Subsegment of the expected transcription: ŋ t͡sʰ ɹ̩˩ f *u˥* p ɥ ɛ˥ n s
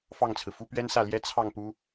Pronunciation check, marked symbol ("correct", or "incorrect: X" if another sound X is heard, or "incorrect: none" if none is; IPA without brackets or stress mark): correct